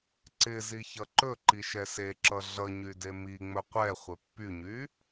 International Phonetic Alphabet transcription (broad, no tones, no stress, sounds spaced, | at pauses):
ǀ ɪ z i ç ʌ ǃ ɵ ǃ i ʃ ɛ s e ǁ ʌ ɮ ʌ ɲ y d e m i ŋ͡m ɵ qʷ ɛ χʷ ɪ pː y ɲ y